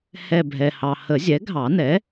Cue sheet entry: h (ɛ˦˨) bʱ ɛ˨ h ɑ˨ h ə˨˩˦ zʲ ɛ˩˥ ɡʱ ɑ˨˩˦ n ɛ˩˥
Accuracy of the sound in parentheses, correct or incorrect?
correct